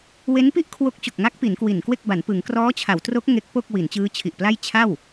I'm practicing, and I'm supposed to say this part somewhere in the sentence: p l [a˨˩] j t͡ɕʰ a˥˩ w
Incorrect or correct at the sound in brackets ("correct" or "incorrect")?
incorrect